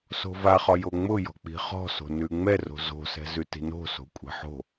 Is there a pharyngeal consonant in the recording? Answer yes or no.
yes